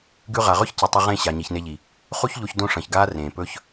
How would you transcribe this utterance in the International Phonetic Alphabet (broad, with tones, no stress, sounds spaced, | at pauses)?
ɡ ʉ˧ ʁ a˨ ʁ ɵ˦ ç c ɨ˨ tˤ ɐ˧ ʁ ẽ˦˨ ɕ a˨ ɲ i˨ ç n e˧ ʎ i˨ | χ u˦ ç ʎ o˧ ç d õ˦ ʂ ɐ̃˨ ç ɡ aː˦ r ẽː˨ p ɵː˦ ç